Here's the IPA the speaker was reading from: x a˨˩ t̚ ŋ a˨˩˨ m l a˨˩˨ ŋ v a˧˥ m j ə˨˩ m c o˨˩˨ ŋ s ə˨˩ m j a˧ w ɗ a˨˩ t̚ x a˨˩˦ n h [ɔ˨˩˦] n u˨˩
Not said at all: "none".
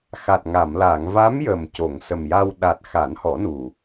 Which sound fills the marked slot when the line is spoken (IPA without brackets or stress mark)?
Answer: ɔ˨˩˦